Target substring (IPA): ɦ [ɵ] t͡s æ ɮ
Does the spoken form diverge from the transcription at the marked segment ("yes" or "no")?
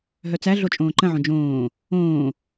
yes